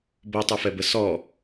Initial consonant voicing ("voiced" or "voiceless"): voiced